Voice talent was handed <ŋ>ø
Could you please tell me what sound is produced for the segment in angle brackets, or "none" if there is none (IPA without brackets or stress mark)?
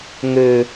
ŋ